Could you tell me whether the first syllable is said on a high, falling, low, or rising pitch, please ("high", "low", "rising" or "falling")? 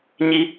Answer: high